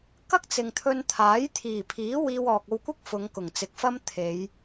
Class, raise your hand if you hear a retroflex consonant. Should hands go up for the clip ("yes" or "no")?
no